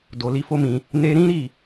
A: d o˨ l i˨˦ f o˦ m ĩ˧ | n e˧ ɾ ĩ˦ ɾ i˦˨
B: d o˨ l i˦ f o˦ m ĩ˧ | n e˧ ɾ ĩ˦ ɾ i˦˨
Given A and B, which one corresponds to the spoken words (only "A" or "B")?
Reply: A